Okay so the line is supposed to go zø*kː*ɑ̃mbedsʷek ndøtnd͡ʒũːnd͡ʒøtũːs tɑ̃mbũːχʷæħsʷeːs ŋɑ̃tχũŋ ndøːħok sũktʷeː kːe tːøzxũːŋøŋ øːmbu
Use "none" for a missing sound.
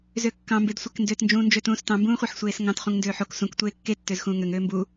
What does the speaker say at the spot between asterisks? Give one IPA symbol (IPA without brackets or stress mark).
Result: kː